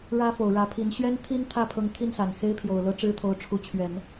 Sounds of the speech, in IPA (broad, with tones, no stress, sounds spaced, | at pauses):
ɻ ä˥ f o˨˩ ʊ̯ ɻ ä˧˥ pʰ i˧˥ n ɕ ɥ ɛ˥ n t̪ʰ i˥ n t̪ʰ ä˥˩ pʰ ɤ˧˥ ŋ t̪ʰ i˥˩ n s a˨˩ n x e˥ ɪ̯ pʰ j o˨˩ ʊ̯ l ɤ˥ ʈ͡ʂ ɻ̩˥ t̪ʰ o˧˥ ʊ̯ ʈ͡ʂʰ u˧˥ t͡ɕʰ ɥ ɛ˨˩˦ n